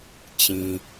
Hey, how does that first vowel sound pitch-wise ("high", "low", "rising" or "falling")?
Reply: low